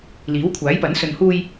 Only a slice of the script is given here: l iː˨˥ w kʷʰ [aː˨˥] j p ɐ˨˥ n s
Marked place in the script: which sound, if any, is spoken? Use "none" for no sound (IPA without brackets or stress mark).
aː˨˥